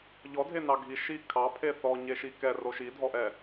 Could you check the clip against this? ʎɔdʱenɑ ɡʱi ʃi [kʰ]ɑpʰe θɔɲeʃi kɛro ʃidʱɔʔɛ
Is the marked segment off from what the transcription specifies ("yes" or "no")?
no